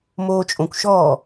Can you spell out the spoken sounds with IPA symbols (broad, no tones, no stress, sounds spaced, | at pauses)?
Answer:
m oː t͡ʃʼ õ kʷ ʃ ɔː